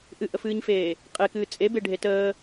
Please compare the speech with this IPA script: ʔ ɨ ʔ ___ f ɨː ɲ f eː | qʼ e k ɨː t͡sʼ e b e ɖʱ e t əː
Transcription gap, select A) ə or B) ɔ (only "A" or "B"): A